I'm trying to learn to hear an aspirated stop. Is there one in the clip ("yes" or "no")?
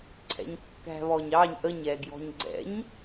yes